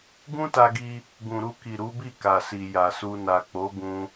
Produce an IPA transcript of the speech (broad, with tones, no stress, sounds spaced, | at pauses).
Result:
ɡ ũ˦ t a˧ ɡ i˧ | ɡ ũ˨ ɾ u˧ k i˨ ɾ u˨˦ b i˦˨ k a˨ s i˨ j a˨ s u˧ n a˨ k͡p o˨˦ ɡ ũ˧